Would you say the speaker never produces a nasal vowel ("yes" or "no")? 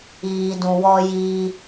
no